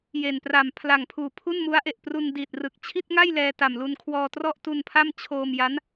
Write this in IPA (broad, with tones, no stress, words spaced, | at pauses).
je˨˩npra˨˩mpʰla˨˩ŋpʰuː˨˩ pʰu˥˩nmu˦˥a̯ʔe˨˩ʔ pru˧ndiː˨˩t̚rɯ˨˩k̚ t͡ɕʰi˥˩t̚ŋa˥˩j lɛː˧ta˨˩mlu˧nkʰwɔː˧ trɔ˥˩ʔtu˧npʰa˥˩m t͡ɕʰoː˧mja˦˥n